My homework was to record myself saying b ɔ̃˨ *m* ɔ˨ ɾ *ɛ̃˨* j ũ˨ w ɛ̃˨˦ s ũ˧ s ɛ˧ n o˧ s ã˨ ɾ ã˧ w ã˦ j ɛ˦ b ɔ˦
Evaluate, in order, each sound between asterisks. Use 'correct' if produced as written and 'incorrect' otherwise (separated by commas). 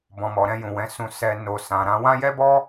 correct, incorrect